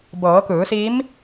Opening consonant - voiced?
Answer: yes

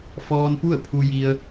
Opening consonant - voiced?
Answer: no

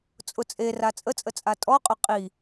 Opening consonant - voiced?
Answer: no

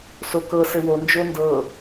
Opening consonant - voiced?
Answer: no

